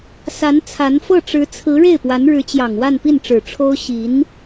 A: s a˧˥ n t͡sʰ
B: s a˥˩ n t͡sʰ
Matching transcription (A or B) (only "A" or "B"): A